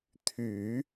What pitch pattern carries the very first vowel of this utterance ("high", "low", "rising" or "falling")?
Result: low